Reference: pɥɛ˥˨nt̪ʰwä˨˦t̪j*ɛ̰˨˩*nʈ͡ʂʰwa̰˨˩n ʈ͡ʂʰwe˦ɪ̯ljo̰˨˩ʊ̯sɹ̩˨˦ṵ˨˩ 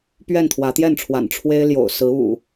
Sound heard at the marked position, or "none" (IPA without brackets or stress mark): ɛ˥˨